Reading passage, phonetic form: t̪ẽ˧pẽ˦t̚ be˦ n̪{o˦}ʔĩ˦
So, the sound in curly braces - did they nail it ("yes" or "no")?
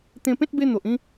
no